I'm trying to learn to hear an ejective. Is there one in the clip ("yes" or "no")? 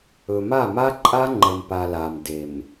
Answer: yes